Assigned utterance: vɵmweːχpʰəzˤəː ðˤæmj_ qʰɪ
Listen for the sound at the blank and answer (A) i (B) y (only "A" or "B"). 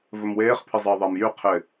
B